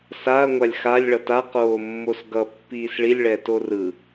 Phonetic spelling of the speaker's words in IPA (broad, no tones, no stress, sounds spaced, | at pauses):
s a ɐ̯ ŋʷ a lʲ x a lʲ ɭ ʌ t a q oː mː o s ɡ ʌ pː iː s ɭ i lʲ ɭ ɛ t o r ɯ